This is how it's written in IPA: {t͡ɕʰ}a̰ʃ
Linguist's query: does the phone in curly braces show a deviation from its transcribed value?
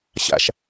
yes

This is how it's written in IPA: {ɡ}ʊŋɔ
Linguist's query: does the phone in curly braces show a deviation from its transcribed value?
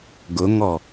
no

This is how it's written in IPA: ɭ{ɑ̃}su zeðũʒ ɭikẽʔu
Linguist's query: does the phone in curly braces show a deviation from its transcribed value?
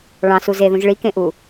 no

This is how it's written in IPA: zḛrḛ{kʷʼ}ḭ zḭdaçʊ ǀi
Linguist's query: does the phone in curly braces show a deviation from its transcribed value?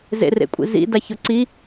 no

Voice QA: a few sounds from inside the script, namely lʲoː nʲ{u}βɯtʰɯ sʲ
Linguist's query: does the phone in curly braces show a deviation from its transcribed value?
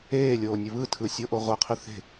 yes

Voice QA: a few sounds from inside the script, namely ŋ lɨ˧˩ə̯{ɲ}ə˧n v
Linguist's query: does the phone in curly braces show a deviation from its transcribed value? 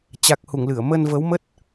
yes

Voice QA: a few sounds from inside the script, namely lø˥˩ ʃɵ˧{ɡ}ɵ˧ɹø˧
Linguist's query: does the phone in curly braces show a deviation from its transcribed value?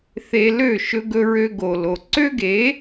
no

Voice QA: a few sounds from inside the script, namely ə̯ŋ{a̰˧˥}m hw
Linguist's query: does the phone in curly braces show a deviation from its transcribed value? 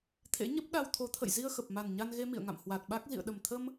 yes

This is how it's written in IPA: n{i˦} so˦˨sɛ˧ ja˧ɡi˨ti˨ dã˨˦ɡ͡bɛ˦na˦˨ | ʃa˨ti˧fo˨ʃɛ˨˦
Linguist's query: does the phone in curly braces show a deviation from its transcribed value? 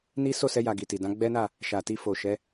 no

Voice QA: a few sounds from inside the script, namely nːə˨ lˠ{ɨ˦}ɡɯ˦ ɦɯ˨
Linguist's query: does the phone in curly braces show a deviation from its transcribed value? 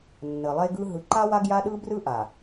yes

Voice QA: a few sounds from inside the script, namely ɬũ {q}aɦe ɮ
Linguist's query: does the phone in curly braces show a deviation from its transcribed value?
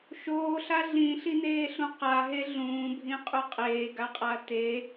no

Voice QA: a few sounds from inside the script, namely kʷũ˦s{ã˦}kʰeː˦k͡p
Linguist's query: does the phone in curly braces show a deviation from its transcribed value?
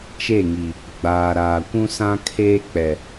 no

